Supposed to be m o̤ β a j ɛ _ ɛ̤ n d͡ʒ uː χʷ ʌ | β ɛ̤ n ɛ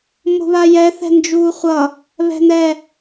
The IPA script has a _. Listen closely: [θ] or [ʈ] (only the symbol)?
θ